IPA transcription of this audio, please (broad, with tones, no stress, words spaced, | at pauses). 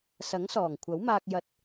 sɐ˨˥ŋsɔː˨˩ŋkʷʰɐ˨˥wmaː˧k̚ jɐ˨˥t̚